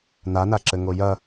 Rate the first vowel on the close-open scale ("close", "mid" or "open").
open